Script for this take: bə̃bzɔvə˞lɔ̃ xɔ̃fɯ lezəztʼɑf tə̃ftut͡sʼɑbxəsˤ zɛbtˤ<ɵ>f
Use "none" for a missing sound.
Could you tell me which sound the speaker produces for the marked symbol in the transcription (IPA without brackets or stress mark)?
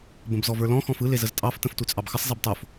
o